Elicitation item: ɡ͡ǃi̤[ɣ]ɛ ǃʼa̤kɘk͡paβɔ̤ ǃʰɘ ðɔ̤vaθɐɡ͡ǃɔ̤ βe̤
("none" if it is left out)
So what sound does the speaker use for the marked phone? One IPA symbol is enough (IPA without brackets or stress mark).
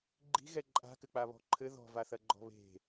ɣ